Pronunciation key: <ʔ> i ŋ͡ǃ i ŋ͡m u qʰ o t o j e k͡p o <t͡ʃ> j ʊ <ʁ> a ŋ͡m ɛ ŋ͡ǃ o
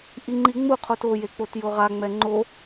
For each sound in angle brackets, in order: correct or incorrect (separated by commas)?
correct, incorrect, correct